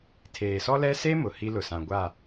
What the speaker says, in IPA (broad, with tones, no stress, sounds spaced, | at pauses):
tʰ eː˨ s ɔ˦ l ɛ˦ s e˦ m ʊ˨ h i˦ l ʊ˨ s ã˨ ɡʷ a˦˨